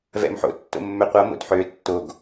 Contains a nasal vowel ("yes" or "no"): no